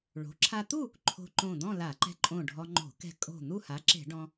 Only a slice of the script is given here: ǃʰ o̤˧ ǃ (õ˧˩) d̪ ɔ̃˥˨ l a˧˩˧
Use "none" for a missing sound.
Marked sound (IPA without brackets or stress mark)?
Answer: õ˧˩